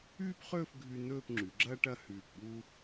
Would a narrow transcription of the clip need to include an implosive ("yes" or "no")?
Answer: yes